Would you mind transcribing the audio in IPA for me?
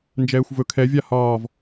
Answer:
n d͡ʒ ɛː xʷ v ɵ kʰ ɛ vʲ a h ɒː v

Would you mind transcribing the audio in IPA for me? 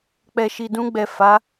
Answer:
k͡p ɛ˨ ʃ i˨ d ũ˧ ɡ͡b ɛ˨ f a˨˦

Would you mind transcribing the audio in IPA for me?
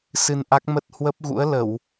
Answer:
s ɨ˧ n ʔ a˦˥ k̚ m ə˦˥ t̚ h w ə˦˥ p̚ ɣ ṵ˧˥ ə̯ l ə˧˩˨ w

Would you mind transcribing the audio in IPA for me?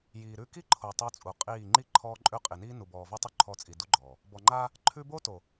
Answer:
j iː˨ ɾ ʉ˦ k i˦ ǃʰ o˨ tˤ o˦ t͡sʼ u˨ qʼ iː˦˨ ŋ͡ǃ i˦ ǃʰ ɔː˦ ǃʼ ʉ˦˨ qʼ i˨ n iː˦ n u˨ b ɔː˨ v o˦ tˤ u˦ ǃʰ ɔ˦˨ t͡sʼ i˨ d u˦ ɡ͡ǃ ɔː˨ | b ɔ˨ ŋ͡ǃ aː˦ | ǃʰ ʉ˦ b o˦ t o˨

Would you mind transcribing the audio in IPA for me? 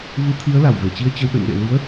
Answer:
v ɨ˨˦ t̪ʰ i˨˦ ə̯ l a˧˩ w v e˧˩ t͡ɕ i˧ ə̯ t͡ɕ ə˧ w ɗ ə̰˧˨ n ɗ ḛ˧˨ l i˨˦ ə̯

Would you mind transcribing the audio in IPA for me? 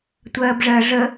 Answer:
tʷ ɜː b ʐ ɜ ʐ ə

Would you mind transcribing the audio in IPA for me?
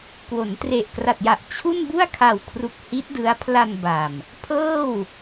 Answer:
k w o˩˦ n t r e˨˩ ʔ k r a˨˩ t̚ j a˨˩ ʔ t͡ɕʰ u˥˩ n b u˥˩ a̯ kʰ a˨˩ w kʰ r u˨˩ k̚ h i˦˥ t̚ d ɯ˦˥ a̯ pʰ l a˧ n b a˨˩ m | pʰ ɤː˥˩ w

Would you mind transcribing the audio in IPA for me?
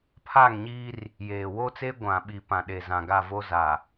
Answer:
pʰ aː˦˨ ŋ ɲ iː˦ r | j eː˨ w o˦ t͡s eː˦ ɡʷ ã˨ ɓ i˨ p ã˨ ɗ e˨ z ã˨ ɡ a˦˨ v o˦ z a˨

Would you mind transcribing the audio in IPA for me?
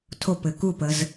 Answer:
tʰ o p ɘ k u p ə z

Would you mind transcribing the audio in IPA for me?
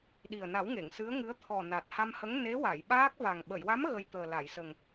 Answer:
ɗ i˨˩ ə̯ n a˨˩˦ w ŋ e˨˩˨ ŋ s ɨ˧˥ ə̯ ŋ ɨ˧˥ ə̯ t̪ʰ ɔ˨˩ n a˨˩ t̚ h a˧ m h ə˧˥ ŋ n e˧˥ w a˨˩˨ j ɓ aː˦˥ k̚ v a˨˩ ŋ ɓ ə˨˩˨ j w a˧˥ m ɣ ə˧ j t̪ əː˨˩ l a˨˩˨ j s ə˨˩ ŋ

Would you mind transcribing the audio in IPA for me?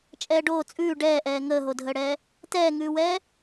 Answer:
t͡ʃʼ ɛː ɖ oː t͡sʼ ʉː ɖ ɛː ʔ ɛː ŋ əː ɦ o dʱ əː ɽ ɛː | t ɛː ŋ ʉː w ɛː

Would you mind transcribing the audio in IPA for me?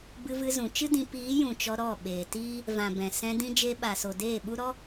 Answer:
b ɨ˧ v ɨ˧ z ũ˨ t͡ʃ ɨ˦ d ĩ˧ p iː˨˦ j ũ˨ t͡ʃ ɔ˧ ɾ ɔ˦˨ ɓ eː˨ t iː˦ | v ã˨ b ɛ̃˨ s ɛ̃˧ d ĩ˧ d͡ʒ e˧ ɓ a˨ s o˨ d eː˦˨ ɓ u˦ ɾ ɔ˦

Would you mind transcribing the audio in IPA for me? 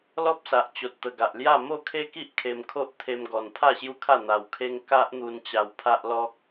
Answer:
l ɔ˦ p̚ s a˨ ʔ t͡ɕ o˨ t̚ t̪ ə˨˩ ɡ a˨ ʔ l j a˥˧ m o˥˧ kʰ e˦ k i˦ ʔ kʰ e˧ m kʰ o˦ ʔ t̪ʰ e˧ m ɡ ɔ˨˩ n pʰ a˥˧ ɕ j u˦ kʰ a˥˧ n̪ a˧ w kʰ e˦ ŋ k a˦ ʔ n̪ u˧ n t͡ɕ a˧ w pʰ a˦ ʔ l ɔ˦ k̚

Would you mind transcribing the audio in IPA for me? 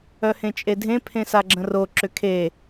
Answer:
œ h ẽ t͡ʃʼ e dʱ ẽ pʰ ẽ s a ɡ͡ǁ ə̃ r o ǁ ʏ kʰ e

